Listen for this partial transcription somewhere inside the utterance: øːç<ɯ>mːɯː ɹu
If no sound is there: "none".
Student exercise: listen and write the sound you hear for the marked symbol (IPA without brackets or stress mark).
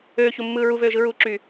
u